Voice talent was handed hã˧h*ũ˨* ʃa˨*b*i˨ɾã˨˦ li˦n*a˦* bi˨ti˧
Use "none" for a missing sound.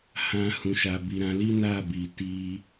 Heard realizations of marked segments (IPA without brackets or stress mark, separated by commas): ũ˨, b, a˦˨